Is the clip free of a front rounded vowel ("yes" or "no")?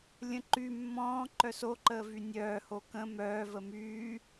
no